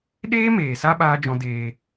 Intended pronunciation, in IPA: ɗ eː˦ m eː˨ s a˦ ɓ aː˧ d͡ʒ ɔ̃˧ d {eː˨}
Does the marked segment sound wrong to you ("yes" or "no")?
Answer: yes